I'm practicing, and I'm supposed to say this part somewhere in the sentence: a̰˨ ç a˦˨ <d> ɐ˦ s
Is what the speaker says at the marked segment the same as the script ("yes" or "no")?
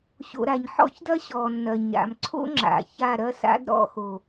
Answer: no